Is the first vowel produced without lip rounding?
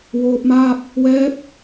no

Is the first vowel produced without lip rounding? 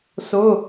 no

